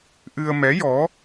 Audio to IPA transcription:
ʔ ɨ˧ ə̯ m ɛ˧˥ j ɔ˧˥

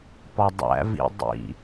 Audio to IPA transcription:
p ɒ dˤ æ̰ v ḭ dˤ ḭ

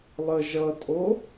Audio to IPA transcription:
lˠ ə ʒ ʌ tʼ o

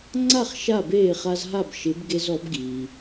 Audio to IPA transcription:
ŋ͡ǀ a˥˩ χ ʃ a˥˩ b eː˥˩ χ a˧ z ɦ a˥˩ b ʃ ɪ˩˥ b ɡ e˧ z ɔ˩˥ b ɡ iː˩

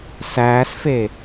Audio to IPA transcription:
s æː s f e

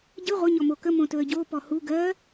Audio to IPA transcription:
ɟ ɨ ʁʷ ə ɲ ɔ m o k ə m õ t ɵ ə̯ ɟ o p ɔ h u ɡ ɜ

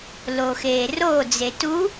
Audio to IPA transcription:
l o x eː r o d͡z e t u

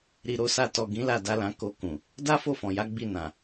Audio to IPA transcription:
ɾ i˨ ɾ o˧ s a˧ t ɔ˨ ɡ ĩ˨˦ l a˦˨ d a˨˦ l ã˧ k o˧ k ũ˨ | d a˦ f o˦˨ f ɔ̃˨ j a˨˦ ɡ͡b i˦˨ n ã˨

